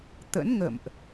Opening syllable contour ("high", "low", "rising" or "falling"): rising